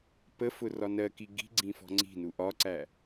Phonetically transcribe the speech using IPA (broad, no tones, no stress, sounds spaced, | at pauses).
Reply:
p ə f ʊ r ɒ n ɜ k i ɡ i̤ ɡ͡ǀ ĩ f ɔ̤ ŋ͡ǀ i̤ n u ʔ ɒ ǀ æ